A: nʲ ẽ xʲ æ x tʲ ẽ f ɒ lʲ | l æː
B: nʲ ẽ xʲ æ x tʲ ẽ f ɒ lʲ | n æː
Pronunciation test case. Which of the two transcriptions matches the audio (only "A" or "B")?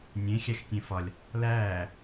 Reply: A